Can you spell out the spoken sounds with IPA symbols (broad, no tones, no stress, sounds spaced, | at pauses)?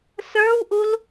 s ə˞ w ʔ u l